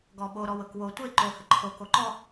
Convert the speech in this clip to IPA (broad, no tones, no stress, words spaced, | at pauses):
ɡɔɓo ɾɔwɤkwo tʷe ǃo həǃʰo koǃɔ